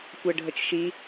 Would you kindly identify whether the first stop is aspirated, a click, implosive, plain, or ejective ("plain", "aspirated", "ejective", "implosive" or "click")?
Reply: plain